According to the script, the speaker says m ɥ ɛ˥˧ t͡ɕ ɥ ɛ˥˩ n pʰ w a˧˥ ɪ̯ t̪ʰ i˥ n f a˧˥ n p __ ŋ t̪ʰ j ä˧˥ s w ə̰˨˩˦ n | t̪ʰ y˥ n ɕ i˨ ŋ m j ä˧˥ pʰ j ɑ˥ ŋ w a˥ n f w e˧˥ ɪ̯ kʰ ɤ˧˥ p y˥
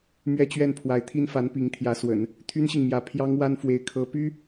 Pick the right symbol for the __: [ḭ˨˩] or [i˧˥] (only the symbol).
i˧˥